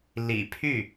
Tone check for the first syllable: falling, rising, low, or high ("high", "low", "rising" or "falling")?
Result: low